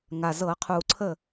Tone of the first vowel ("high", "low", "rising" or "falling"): low